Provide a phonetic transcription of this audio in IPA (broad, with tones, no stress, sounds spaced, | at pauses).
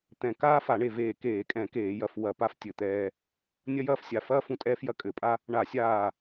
t̪ ɛ̃˧˩ k aː˦ f a˧˩˧ ɳ e˧˩ v eː˧˩ k eː˧˩˧ kʼ ɛ̃˧˩˧ k eː˧˩˧ j ɐ˧˩ f w ɐ˧˩˧ p a˦ f tʲ ɘ˧˩ t̪ ɛː˦ | nʲ ɐ˦ j ɐː˦ f sʲ a˧˩ f ɐː˦ f ũ˧˩ tʼ ɛː˦ f j ɐ˦ kʼ ɘ˧˩˧ pʼ a˦ | ɳ a˧˩˧ sʲ aː˧˩